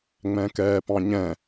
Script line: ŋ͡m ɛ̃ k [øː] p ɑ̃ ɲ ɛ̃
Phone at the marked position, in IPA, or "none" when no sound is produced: ɛː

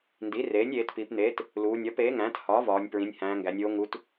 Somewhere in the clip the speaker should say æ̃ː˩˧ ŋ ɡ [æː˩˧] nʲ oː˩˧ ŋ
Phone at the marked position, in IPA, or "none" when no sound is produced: æ˩˧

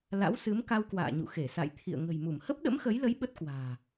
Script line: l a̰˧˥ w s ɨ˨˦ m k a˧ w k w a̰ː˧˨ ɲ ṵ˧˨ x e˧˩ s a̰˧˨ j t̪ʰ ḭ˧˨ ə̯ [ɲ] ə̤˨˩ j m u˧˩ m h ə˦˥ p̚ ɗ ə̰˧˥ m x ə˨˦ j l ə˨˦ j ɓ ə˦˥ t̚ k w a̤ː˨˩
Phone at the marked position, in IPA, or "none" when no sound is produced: ŋ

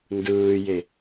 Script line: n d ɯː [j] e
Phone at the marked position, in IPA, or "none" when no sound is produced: j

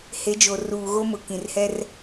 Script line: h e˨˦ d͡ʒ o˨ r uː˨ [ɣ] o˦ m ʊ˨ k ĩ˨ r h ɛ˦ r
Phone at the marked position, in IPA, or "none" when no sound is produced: ɣ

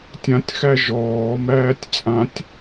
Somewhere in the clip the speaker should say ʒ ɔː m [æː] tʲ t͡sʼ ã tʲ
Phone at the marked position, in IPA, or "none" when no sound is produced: æː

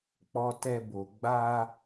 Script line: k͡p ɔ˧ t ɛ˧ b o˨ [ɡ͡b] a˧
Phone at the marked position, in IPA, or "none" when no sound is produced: ɡ͡b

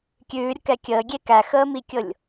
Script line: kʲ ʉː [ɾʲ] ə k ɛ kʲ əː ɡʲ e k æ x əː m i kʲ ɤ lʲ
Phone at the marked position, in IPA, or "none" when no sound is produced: ɾʲ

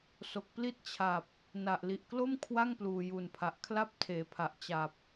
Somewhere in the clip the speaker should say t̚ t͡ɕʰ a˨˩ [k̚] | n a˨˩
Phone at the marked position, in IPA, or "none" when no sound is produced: p̚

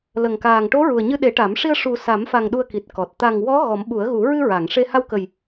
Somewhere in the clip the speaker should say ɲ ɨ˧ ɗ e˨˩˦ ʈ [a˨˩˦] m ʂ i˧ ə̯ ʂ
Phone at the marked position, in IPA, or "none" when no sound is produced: a˨˩˦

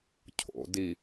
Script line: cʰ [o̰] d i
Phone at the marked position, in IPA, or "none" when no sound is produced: o̰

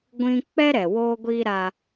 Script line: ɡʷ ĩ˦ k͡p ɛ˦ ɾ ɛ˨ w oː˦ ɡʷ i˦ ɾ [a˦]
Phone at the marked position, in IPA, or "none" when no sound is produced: a˦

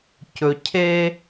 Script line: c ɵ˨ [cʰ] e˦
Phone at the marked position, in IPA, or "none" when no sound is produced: cʰ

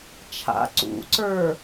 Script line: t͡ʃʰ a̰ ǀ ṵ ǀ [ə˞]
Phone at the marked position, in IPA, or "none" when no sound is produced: ə˞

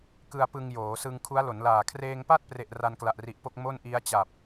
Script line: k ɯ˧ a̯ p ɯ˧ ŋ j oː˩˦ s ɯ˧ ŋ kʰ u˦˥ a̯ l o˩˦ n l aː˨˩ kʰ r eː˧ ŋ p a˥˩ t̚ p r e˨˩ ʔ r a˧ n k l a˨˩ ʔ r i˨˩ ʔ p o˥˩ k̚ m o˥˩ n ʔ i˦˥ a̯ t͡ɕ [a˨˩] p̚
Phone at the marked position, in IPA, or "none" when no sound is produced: a˨˩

